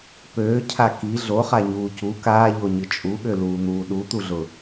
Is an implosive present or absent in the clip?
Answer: present